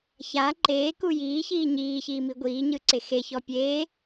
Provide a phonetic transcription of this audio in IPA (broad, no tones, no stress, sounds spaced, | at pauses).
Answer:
ç a ǃ eː k u j iː ç iː ɲ iː ç iː m i ɡʷ iː ɲ ɯ ǀ e x e ç ɔ pʲ eː